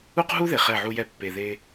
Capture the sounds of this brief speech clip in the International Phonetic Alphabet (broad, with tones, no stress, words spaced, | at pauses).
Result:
u˦qɦu˦ ðe˨χɛ˦˨ʕu˦jɛ˦ pːe˨ðe˦